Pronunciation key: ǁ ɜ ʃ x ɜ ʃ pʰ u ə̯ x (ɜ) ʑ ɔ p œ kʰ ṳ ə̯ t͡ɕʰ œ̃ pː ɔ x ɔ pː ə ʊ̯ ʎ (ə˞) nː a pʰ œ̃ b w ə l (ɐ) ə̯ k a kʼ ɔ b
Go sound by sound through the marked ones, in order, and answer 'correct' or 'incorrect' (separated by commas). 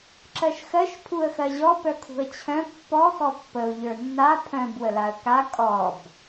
correct, correct, incorrect